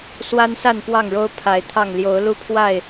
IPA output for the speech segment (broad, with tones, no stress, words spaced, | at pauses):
swa˦nsa˥˨npwɑ˥˨ŋɻo˦ʊ̯ pʰa˨˦ɪ̯t̪ʰɑ˥˨ŋ ljo˨˦ʊ̯lu˦pʰwa˥˨ɪ̯